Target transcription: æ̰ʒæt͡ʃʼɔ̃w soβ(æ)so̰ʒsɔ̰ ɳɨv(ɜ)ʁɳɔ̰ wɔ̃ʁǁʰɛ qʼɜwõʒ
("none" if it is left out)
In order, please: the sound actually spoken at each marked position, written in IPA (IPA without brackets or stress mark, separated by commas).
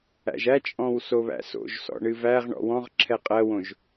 æ̰, æ